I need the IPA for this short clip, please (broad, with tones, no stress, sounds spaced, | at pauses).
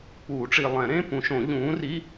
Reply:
k͡p uː˨˩˦ ʈ͡ʂ i˨ lˠ ɛ̃˨˩˦ ɾ ẽ˧˥˧ p ũ˨˥ ʃ õ˨˩˦ ʎ ũː˨˥ r i˧˥˧